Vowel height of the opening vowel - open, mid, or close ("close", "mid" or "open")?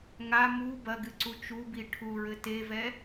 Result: open